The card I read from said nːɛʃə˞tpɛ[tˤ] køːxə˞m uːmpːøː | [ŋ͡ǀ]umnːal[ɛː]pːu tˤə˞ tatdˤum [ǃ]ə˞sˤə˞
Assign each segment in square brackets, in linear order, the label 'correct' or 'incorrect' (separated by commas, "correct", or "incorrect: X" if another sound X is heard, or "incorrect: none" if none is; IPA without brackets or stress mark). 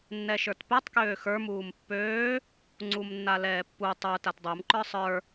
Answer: correct, correct, correct, correct